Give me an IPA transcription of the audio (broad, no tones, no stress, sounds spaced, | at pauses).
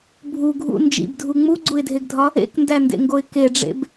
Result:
bʱ u ɡʱ ṵ n d͡ʒ ḭ b dʱ u ŋ͡m u ɡ͡ǀ u ɪ̯ dʱ e ɡ dʱ ɒ | ḛ k n d æ n d ḛ ŋ ɡ o ɪ̯ k e ɖ͡ʐ ḛ b